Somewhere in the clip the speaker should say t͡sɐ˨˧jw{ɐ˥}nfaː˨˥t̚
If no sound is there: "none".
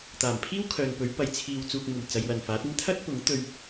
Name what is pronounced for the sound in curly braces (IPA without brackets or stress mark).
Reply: ɐ˨